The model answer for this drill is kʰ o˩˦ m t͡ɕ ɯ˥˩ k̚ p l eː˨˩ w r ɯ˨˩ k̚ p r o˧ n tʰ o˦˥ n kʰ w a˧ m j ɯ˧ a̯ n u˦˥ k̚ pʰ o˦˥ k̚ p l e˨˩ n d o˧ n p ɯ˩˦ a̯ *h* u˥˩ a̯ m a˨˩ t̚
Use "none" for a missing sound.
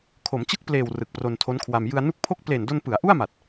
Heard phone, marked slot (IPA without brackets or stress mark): ʔ